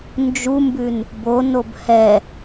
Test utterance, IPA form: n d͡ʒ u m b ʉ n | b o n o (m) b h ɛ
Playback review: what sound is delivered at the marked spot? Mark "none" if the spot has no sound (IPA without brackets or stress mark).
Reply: none